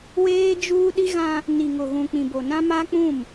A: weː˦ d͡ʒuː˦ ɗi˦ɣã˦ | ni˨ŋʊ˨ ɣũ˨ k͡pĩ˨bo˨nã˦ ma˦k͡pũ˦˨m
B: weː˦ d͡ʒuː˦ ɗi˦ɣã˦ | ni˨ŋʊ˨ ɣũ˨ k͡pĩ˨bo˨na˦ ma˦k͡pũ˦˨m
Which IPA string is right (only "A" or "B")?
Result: A